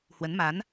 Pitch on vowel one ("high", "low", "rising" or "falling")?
rising